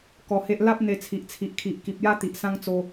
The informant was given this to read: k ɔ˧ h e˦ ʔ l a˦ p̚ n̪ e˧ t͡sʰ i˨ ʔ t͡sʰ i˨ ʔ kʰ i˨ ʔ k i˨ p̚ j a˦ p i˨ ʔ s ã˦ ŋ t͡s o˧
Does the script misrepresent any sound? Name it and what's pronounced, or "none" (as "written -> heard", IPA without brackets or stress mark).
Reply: p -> t̪